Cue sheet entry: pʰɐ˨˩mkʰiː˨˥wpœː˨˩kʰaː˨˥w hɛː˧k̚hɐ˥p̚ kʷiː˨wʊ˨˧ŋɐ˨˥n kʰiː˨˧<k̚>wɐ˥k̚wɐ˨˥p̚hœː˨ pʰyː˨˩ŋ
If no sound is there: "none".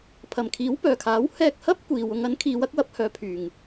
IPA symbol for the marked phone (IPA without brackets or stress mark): none